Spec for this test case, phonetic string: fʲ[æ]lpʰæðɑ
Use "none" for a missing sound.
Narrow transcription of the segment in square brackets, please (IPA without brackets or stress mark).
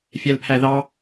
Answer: æ